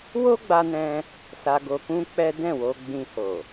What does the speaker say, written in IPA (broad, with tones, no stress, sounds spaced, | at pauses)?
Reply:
w o˦ ɡ͡b a˧ n ɛ̃˧ | s a˧ ɡ o˧ k ũ˦ k͡p ɛ˦ d ɛ̃˦˨ w o˧ ɡ͡b ĩ˧ h o˨